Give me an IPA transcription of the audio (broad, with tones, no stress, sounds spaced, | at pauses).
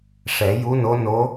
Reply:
ʂ ɛ˨˩˦ j u˧˥ n o˧˥ n o˧˥